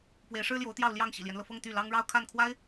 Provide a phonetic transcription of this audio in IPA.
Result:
p w e˧˥ ɪ̯ ʂ ɻ̩˥ l j o˧˥ ʊ̯ t̪ j ɑ˥˧ ʊ̯ l j ɑ˥˩ ŋ ɕ ḭ˨˩ l j ɛ˦ n l ɤ˩ f ɤ˥˧ ŋ t̪ y˥˩ l ɑ˥ ŋ ɻ ɑ˥˧ ʊ̯ kʰ a˥˩ n kʰ w a˥ ɪ̯

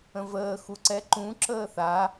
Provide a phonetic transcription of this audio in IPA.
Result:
ə̃ v əː x u ǀ ɛ ǃ ũ ǁ əː θ a

